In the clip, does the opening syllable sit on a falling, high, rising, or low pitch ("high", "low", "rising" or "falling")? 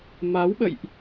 rising